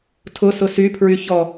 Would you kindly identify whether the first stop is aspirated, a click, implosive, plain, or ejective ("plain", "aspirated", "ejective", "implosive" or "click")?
aspirated